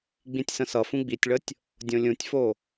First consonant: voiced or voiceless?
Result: voiced